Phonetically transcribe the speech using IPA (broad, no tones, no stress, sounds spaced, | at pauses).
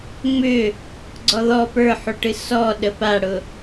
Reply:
ŋ͡m ʏ | ɡ͡ǀ ɔ ð ɔ p ə˞ ħ u ʈ ɨ s ɔ ɗ ə p a ɽ ʊ